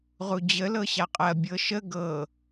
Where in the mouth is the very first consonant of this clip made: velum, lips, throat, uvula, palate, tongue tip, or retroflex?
uvula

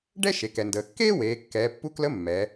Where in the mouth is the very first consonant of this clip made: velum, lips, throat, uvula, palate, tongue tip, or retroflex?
retroflex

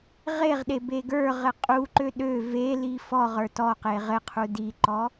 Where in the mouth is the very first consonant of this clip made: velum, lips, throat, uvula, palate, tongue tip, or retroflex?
uvula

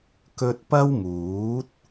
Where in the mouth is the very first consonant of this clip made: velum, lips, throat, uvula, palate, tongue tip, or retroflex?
velum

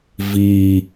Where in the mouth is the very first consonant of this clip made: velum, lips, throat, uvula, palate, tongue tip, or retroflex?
lips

